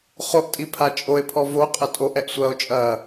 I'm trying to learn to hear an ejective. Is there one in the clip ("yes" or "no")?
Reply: yes